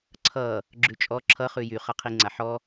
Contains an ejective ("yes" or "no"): yes